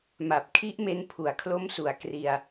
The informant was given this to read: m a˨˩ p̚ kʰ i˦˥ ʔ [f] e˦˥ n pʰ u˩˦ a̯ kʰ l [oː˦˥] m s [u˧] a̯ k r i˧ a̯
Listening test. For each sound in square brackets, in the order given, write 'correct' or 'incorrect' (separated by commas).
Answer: incorrect, incorrect, incorrect